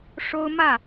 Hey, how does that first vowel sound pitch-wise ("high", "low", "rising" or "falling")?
high